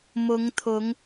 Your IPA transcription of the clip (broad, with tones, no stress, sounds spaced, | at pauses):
m ʊ˨˧ ŋ t̪ʰ ʊ˨˧ ŋ